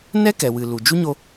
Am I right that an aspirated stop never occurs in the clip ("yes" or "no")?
yes